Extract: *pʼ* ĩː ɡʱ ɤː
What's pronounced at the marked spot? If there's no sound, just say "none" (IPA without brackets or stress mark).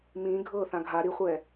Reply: m